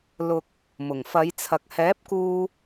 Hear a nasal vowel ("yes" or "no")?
no